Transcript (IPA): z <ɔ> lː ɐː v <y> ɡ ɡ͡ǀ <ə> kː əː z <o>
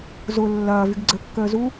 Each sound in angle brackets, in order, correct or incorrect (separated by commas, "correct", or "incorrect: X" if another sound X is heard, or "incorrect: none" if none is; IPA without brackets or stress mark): incorrect: ʊ, correct, correct, incorrect: u